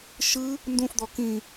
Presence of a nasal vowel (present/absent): present